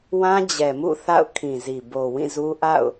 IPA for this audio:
wã˦d͡ʑɛ˨mṵ˦˨ θa̰˦˨ʊ̯ kʰĩ˨zi˨bo˨ wĩ˦˨zu˦ʔa̰˦˨ʊ̯

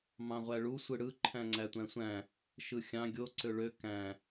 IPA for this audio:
mɑ̃ʁʷæɭu sʷɯɽɯ ǃʰæ̃ŋ͡ǀætʷæ̃sʷæ̃ | ʃɯxʲɑ̃ ɡʲo ǀøɭø kæ̃

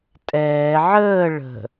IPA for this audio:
tʼɛː ʕəː ɭə̤

